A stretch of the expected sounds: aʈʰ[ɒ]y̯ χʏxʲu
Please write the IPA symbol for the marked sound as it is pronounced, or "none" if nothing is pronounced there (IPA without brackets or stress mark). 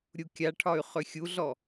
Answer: ɒ